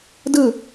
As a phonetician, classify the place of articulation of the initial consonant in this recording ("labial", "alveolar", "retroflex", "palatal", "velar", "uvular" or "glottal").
alveolar